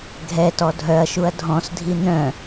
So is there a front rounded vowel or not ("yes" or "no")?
yes